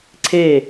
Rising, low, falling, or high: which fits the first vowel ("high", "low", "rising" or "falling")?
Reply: falling